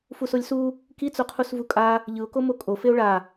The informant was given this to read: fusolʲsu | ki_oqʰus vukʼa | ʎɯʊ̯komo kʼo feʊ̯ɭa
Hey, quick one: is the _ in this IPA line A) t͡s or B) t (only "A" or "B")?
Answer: A